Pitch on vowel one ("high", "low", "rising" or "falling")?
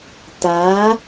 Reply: rising